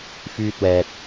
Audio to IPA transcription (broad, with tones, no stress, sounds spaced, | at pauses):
f yː˧ t̚ w ɛː˨ t̚